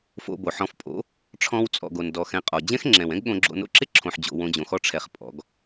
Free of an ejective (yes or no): no